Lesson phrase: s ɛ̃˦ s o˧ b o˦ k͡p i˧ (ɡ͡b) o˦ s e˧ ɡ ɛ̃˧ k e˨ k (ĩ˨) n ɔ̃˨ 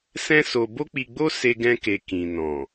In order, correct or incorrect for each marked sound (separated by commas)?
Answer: correct, correct